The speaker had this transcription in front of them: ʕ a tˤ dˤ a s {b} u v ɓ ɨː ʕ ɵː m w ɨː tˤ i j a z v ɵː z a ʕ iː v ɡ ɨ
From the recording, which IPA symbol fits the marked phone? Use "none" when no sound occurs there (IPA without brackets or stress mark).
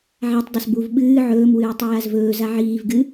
b